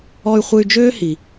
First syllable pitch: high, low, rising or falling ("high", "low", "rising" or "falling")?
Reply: high